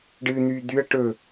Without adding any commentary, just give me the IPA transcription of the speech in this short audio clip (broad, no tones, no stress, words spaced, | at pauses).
ɖɨn̪yː d̪yɐ̯ ʈɵ